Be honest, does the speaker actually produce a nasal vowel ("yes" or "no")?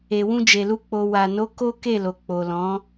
yes